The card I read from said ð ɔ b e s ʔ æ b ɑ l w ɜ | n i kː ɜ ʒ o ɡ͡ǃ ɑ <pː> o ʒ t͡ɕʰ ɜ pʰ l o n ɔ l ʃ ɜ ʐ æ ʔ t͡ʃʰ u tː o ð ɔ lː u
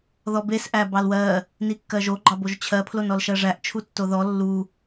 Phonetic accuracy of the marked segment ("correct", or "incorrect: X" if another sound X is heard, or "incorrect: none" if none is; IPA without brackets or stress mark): incorrect: b